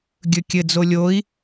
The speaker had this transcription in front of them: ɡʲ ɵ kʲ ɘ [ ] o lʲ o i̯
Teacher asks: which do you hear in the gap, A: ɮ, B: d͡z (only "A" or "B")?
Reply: B